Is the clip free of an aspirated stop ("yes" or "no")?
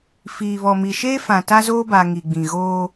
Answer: yes